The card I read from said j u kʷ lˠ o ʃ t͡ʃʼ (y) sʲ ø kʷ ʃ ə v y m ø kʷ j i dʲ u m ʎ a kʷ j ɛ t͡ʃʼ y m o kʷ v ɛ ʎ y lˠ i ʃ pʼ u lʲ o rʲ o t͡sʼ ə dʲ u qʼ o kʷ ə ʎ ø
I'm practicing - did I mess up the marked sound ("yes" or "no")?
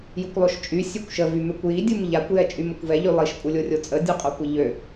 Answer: no